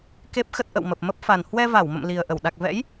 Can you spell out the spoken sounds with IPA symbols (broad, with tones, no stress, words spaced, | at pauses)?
ke˦˥p̚xə˦˥t̚ʔə̰˧˨w mə˨˩p̚mə˦˥p̚ fa˨˩n hwɛ˧va˧˩wmə̰˧˨m li˨˩ə̯ ʔə˧˩w ɗa˨˩k̚vɛ̰˧˥j